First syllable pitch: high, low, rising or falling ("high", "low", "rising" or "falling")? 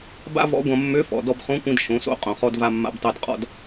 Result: high